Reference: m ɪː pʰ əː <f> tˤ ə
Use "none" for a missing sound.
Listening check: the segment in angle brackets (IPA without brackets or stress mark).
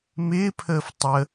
f